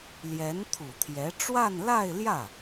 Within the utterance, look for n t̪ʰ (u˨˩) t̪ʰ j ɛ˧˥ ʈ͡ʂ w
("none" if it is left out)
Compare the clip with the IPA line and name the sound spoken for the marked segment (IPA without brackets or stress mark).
u˨˩